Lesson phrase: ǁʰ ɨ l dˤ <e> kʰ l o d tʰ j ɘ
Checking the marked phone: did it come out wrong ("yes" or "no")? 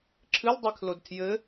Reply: no